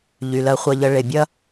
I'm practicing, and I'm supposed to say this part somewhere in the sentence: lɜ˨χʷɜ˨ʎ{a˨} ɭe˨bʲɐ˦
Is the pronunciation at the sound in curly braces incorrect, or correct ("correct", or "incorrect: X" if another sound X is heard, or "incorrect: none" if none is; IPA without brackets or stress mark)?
incorrect: ə˨